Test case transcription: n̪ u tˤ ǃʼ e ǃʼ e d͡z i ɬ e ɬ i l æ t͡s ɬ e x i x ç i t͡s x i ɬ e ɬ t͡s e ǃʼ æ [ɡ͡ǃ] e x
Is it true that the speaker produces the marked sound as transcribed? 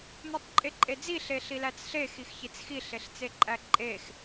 no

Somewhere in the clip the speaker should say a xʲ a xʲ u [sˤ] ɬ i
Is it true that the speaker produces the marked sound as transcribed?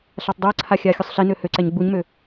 yes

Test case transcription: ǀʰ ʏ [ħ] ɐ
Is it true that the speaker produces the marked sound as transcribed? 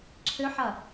yes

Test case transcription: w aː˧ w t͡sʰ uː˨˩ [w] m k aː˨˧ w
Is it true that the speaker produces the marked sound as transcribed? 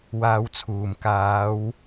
no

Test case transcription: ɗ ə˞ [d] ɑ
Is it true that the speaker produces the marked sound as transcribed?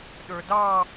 yes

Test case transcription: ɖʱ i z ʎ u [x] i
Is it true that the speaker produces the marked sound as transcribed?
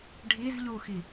yes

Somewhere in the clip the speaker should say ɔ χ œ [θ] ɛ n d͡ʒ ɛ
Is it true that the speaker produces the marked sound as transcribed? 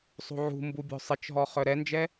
no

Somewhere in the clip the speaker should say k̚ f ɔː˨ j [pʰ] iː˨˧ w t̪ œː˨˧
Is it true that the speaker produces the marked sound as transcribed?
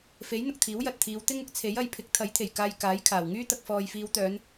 no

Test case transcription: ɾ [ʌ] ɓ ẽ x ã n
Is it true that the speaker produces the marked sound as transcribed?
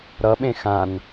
yes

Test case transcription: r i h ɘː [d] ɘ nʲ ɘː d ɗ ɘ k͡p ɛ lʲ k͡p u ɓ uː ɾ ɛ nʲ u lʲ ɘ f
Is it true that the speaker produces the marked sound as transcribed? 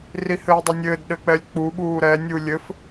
no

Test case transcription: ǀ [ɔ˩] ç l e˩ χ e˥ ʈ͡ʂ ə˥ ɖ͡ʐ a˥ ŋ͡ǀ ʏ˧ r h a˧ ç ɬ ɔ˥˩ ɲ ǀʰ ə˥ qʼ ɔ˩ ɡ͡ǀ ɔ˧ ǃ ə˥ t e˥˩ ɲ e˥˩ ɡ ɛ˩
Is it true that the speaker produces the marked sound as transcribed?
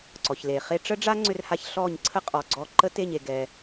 yes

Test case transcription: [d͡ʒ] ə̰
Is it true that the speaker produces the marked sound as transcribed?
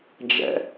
yes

